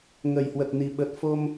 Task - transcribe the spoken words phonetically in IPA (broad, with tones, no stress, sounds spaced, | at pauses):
ŋ ə˨˩ j h w ə˨˩ t̚ n i˨˩ ɓ ə˨˩ t̚ f o˧ m